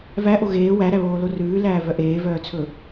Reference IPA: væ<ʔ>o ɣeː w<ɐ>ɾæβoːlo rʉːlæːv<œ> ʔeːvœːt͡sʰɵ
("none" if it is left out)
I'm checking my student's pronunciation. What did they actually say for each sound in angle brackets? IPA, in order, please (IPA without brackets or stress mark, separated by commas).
ʔ, æ, œ